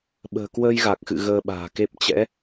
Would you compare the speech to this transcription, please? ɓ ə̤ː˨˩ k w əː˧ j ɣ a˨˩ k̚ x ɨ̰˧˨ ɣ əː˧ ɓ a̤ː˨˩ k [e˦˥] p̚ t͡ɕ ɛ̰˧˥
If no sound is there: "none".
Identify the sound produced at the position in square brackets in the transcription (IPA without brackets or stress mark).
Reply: e˦˥